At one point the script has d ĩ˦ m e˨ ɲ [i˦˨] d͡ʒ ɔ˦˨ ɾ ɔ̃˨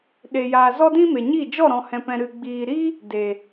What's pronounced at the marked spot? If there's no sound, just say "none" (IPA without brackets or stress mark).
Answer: i˦˨